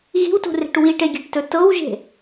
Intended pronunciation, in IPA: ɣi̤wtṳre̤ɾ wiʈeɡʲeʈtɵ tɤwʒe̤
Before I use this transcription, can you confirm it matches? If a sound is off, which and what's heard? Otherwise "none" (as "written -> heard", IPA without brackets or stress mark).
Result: ɾ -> ʈ